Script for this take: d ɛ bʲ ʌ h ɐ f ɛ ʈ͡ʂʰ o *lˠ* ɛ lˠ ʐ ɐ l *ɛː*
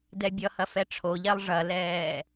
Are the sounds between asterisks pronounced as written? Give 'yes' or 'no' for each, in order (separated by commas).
no, yes